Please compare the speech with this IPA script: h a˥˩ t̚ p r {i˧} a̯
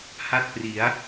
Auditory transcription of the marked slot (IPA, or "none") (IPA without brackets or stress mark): i˩˦